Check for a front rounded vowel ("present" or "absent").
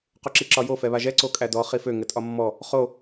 present